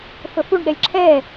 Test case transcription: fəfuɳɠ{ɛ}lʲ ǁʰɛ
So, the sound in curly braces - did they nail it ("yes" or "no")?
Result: yes